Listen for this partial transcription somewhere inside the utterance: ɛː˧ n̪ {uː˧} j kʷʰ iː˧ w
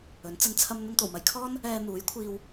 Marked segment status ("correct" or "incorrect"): incorrect